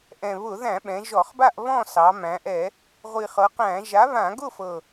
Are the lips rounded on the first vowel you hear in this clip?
no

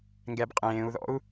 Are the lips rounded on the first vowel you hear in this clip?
no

